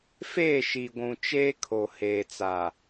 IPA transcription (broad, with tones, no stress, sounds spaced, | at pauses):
f eː˦˨ ʃ i˨ ɡʷ ũ˨ t͡ʃ eː˦ kʰ o˨ h eː˨ t͡s a˨